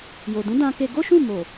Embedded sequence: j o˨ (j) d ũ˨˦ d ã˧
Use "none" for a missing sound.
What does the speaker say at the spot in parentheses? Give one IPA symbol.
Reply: none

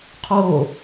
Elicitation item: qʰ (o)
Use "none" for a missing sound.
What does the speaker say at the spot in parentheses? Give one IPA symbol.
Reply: oː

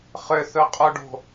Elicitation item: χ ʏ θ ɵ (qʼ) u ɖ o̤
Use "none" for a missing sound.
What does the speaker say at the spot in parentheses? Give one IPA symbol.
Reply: qʼ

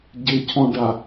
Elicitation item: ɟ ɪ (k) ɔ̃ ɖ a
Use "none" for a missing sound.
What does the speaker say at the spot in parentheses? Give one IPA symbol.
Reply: cʰ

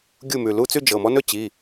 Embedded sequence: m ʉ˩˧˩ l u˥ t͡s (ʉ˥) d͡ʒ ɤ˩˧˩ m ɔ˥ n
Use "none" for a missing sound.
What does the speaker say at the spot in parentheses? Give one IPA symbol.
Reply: ʉ˥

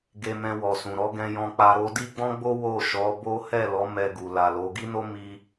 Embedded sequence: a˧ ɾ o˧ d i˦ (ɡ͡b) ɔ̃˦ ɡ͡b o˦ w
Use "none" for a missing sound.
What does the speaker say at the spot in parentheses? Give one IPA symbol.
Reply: ɡ͡b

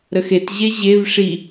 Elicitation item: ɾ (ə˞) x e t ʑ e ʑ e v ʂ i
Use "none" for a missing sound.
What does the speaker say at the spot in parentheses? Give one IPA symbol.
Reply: ə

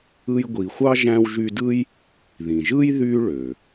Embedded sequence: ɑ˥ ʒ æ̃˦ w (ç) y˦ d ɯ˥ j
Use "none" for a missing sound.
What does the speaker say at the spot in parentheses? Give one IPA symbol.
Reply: ʒ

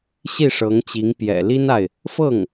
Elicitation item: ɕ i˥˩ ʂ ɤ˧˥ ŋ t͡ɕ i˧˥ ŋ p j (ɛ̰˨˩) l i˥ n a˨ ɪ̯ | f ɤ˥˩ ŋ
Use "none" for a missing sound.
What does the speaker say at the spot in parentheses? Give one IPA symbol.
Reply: ɛ̰˨˩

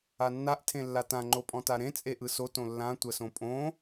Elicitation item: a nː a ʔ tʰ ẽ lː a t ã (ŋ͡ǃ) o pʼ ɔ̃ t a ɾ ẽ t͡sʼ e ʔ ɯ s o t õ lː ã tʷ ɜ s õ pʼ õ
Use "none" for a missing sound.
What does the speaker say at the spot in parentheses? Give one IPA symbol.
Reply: ŋ͡ǃ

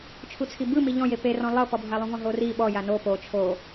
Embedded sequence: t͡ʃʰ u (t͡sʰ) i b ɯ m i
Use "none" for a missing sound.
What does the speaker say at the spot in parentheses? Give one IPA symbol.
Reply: t͡sʰ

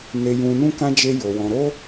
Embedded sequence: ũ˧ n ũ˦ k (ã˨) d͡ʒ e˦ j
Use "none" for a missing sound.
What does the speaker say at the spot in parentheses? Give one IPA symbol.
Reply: ã˦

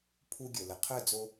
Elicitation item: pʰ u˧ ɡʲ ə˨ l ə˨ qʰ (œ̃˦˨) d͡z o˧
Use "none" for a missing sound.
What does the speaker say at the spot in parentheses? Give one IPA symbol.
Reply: œ˦˨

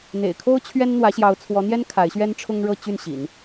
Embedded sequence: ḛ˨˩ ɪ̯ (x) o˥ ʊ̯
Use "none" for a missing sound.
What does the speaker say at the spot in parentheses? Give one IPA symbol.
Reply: kʰ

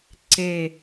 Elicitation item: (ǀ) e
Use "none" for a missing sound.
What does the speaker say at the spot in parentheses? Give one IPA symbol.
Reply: ǀ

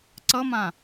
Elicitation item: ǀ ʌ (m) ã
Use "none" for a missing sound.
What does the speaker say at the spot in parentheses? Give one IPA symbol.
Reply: m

